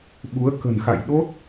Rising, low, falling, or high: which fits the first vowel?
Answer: rising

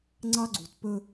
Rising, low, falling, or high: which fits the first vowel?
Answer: high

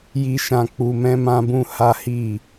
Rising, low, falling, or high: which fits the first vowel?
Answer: high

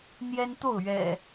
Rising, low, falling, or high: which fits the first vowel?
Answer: high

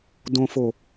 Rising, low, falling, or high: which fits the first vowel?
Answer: low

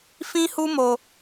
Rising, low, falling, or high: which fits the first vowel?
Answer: high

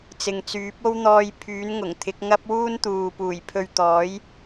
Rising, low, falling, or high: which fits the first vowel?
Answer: low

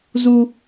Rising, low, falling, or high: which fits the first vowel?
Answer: high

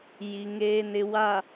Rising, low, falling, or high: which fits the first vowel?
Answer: low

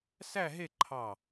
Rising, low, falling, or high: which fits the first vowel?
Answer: falling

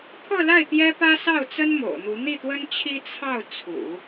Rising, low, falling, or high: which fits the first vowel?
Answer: falling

